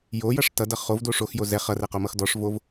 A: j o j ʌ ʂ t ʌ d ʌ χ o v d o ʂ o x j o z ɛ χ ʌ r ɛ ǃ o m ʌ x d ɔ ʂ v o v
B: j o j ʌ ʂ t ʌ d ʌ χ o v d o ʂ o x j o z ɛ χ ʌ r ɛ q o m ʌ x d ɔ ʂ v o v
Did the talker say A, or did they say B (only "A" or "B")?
B